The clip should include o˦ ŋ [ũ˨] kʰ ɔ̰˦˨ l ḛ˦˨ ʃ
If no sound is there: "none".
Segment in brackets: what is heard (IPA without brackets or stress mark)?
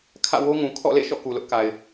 ũ˨